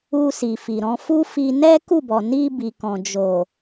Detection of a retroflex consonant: absent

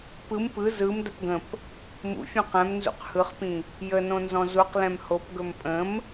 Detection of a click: absent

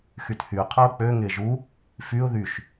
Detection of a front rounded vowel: present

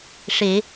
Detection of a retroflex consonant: present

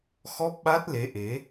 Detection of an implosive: present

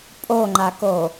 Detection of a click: present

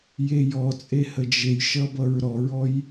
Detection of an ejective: present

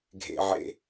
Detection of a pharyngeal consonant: present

